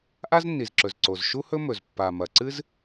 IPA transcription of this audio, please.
ʔa˥znːi˩zǁɵ˩z ǀo˩zʃu˥hɵ˥mɵ˩z pːa˩ mɐ˩ǀɨ˥z

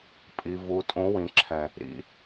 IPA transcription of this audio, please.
pʼi˨vu˨ tʼũ˨˦wĩ˨ǁʰɛ̃˨ | ɾḭ˧

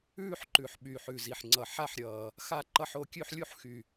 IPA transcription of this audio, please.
ʉː˥˧ħǃʉ˨˩ħ ɓyː˨˩ħʉ˨˩zi˨˩ħ ŋ͡ǀʌ˨˩ ħa˥˧ħɾʲʌː˨˩ | xa˥˧ǃʌ˥˧ħ o˥˧ kʲʉ˥˧ħlʲu˥˧ħxy˨˩

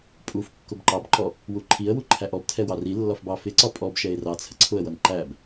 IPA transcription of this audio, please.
pʼuf kːʊbǃɑbǃɔ | wuǃʰiə̯wu ǃʰæʔɔbtʰɛ wɑrilːɒf bɑfɪǀɒ pʼɔbʃɛɪ̯ rɑt͡sʰə ǀʰʊə̯wʌn ǃæb

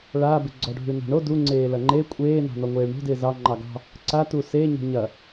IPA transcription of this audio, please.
ɭabɪ ɡ͡ǀɔɖʱʉna̤ɳo duŋ͡ǀeː lɐŋ͡ǃe kʷʼeːnɑ̤ nɔŋʷeːɭɳo̤dɪː zɑ ŋ͡ǃɑɡɑ̤ | ǀatu seːɲo̤ ɲɐ

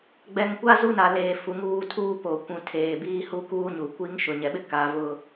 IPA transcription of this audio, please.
ɡ͡bɛ˨ŋkʷa˦ zu˦na˨leː˨ fu˨ŋuː˦˨tʰuː˦ po˨kʷũ˨ tʰeː˨biː˦ hu˦kuː˦ɲu˨ kʷi˦ŋʃʊ˨ ɲɛ˨ɓɪ˦ ka˨˦vʊ˦

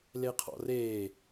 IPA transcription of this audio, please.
leqʰɔ̰reː

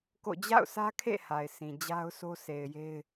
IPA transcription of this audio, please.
ko̰˦˨ d͡ʑa̰˦˨ʊ̯sä˦kʰḛ˦˨ ha˨ɪ̯sʰĩ˨ d͡ʑa˦ʊ̯so˦se˨ɪ̯je˦ɪ̯

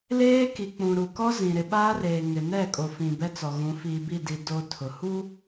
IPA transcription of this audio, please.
leː˦ki˨k͡pũ˨ ɾu˨kɔ˦ zĩ˨ɾɪ˨ɓaː˦reː˨ ŋɪ˨nɛ˦˨kʼo˨fĩ˨ bɛ˦t͡sɔ˨ɣũ˨˦ fiː˨bi˦˨di˨ do˨ tʰʊ˨ hu˦

